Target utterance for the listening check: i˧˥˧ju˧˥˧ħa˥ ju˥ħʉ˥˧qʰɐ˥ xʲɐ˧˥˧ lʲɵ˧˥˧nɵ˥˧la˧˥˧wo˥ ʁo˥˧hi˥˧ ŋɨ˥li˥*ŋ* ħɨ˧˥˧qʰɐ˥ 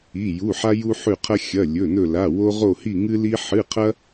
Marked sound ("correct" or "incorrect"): incorrect